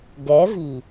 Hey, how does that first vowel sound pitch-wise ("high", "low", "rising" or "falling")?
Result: rising